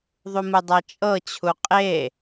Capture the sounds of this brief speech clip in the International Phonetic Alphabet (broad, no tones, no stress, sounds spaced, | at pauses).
ðˤ u m ɯ dˤ a t͡ʃʼ ɤ t͡ɕʰ u qʼ e